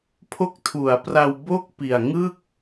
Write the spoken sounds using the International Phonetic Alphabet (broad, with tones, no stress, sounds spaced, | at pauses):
pʰ o˦˥ k̚ tʰ u˩˦ a̯ p r a˧ w b o˥˩ k̚ p i˨˩ a̯ ŋ ɯ˥˩ k̚